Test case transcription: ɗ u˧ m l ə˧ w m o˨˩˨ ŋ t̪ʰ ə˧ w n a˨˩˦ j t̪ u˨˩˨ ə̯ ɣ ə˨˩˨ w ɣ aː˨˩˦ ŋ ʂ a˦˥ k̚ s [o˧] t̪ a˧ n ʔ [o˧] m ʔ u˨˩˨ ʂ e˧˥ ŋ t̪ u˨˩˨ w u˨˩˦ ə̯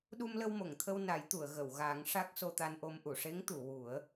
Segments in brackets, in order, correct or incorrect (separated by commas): correct, correct